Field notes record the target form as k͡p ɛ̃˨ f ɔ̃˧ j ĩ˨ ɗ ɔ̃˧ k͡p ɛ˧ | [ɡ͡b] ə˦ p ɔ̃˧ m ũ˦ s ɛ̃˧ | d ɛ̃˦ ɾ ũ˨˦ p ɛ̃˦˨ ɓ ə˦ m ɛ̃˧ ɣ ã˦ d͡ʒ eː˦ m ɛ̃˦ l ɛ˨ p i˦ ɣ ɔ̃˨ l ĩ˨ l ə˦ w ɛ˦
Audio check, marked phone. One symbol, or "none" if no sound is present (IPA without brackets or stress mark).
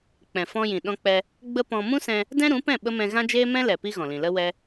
ɡ͡b